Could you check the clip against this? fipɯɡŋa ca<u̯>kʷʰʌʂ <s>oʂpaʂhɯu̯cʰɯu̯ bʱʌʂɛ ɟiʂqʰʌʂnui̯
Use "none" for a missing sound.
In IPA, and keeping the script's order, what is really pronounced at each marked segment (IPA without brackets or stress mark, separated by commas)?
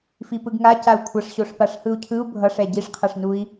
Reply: u̯, ɕ